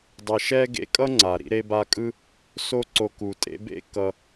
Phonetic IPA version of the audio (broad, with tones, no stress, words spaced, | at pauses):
dˤe˨ʃɛ˥ ɡḛ˦kʼʌ˥ŋ͡ǀa˩ ɾḭ˦ɾe˦ba˦kʼɯ˥ | so˦ǀo˨ku˩tʼḛ˦ bḛ˥ kʌ˨